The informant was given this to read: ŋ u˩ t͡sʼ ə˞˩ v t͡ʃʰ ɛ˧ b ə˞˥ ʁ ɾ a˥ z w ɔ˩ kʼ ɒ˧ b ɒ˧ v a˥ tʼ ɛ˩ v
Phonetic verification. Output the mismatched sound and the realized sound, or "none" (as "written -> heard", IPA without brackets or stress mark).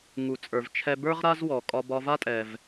none